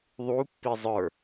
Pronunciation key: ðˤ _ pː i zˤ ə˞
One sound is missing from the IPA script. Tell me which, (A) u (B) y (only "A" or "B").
A